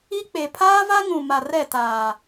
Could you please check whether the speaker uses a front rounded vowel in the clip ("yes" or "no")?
no